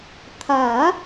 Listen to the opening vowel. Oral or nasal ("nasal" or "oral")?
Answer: oral